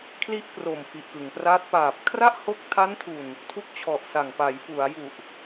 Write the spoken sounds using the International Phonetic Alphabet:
kʰ l i˦˥ ʔ k r o˨˩ m f i˨˩ ʔ k ɯ˩˦ ŋ p r aː˦˥ t̚ p aː˨˩ p̚ kʰ r a˥˩ ʔ h o˦˥ k̚ tʰ a˦˥ n tʰ u˨˩ n | tʰ u˦˥ k̚ t͡ɕʰ ɔ˨˩ ʔ s a˨˩ ŋ p a˩˦ j f u˩˦ a̯ j u˨˩ ʔ

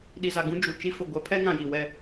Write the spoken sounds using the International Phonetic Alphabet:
ɗ i˨ z a˨ ɡ ũ˦ d͡ʒ u˨ t͡ʃ i˦ f ʊ˨ ɡʷ ɛ˨˦ pʰ ɛ˦ ŋ ã˨ j i˨ w ɛ˦

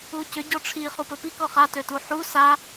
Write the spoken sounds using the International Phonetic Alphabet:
u c ʏ ɟ ɔ ʈ͡ʂʰ i χ u p ɵ p i k ɔ χ a t ø t u ħ u s a

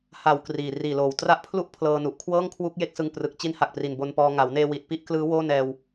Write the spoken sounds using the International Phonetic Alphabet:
h a˨˩ w k r iː˨˩ r iː˨˩ l oː˨˩ w t r a˦˥ ʔ pʰ l u˥˩ ʔ pʰ l ɤː˧ n u˨˩ ʔ kʰ w ɤː˥˩ ŋ kʰ w u˦˥ k̚ j e˦˥ k̚ s ɯ˧ ŋ p r ɯ˨˩ k̚ t͡ɕ i˦˥ n h a˨˩ k̚ p r i˨˩ n b o˧ n p ɔː˧ ŋ a˩˦ w n eː˧ w i˨˩ t̚ p i˦˥ ʔ k l ɯː˦˥ w oː˥˩ n ɛː˧ w

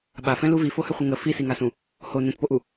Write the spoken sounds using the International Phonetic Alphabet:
ɓ a f ɛ̃ l u v i f o h ʏ χʷ ə ŋ ə f i s i ŋ a s ũ | h o n ɛ̃ t p o ʔ u

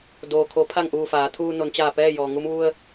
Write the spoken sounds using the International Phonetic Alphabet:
d oː˩ kʰ o˩˧ pʰ a˧˩ ŋ ʔ uː˧˩ f aː˩˧ t̪ʰ uː˧ n o˩˧ n t͡ɕ aː˧˩ p ɛː˥˨ j ɔː˩ ŋ u˧ m ʋ u˧ ə̯

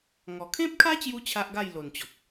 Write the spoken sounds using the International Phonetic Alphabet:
ŋ ɔ˨˩ kʰ ẽ˦ p̚ kʰ a˦ t͡ɕ j u˧ t͡ɕʰ a˦ ʔ ɡ a˥˧ j l o˨˩ n t͡ɕ ɔ˨ k̚

